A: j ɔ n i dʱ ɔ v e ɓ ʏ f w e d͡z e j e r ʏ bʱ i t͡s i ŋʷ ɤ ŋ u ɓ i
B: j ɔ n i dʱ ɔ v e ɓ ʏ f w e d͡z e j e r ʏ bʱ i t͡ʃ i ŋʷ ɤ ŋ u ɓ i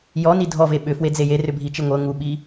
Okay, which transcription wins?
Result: B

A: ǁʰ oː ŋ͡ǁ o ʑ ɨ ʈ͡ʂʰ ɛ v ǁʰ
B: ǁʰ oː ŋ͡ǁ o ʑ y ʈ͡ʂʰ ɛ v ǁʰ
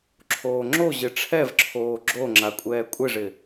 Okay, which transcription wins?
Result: A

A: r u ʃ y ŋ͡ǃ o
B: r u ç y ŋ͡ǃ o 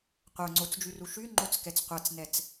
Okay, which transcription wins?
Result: A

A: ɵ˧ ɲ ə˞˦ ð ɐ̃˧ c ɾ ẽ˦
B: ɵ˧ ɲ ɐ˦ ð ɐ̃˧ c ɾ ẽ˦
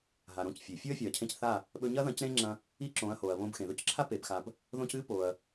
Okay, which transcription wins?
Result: B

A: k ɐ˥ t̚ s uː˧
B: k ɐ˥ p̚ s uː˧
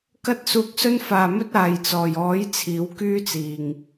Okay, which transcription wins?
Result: A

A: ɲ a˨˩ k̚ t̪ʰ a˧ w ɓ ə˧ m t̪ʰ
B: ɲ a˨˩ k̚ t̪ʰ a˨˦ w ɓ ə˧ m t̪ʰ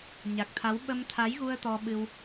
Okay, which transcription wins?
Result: B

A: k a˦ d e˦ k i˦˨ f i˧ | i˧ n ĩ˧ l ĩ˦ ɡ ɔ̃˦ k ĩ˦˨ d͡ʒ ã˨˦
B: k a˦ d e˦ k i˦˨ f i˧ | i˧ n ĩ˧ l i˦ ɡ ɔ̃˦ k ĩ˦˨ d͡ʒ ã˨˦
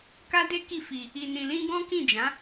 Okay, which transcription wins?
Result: A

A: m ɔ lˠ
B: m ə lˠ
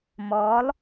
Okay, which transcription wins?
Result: A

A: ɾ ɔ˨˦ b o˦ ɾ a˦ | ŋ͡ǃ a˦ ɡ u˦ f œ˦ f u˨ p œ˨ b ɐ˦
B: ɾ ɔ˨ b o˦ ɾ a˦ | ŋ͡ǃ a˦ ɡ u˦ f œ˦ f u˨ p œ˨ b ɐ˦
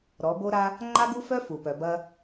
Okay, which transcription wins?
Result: A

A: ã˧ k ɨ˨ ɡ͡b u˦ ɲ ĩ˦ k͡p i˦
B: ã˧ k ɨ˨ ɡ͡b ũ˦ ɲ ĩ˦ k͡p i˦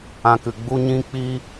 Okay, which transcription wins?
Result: A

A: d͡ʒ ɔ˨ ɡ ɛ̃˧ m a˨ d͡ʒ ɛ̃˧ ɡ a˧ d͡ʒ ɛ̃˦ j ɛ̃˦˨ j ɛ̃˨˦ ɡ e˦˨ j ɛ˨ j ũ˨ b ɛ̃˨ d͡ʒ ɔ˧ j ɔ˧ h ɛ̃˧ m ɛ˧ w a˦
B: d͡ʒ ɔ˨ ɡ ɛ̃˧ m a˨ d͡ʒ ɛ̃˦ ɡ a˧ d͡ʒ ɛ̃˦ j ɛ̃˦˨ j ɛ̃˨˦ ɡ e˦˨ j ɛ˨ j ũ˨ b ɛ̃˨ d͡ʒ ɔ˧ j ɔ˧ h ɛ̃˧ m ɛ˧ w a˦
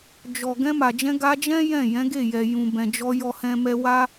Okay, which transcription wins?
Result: A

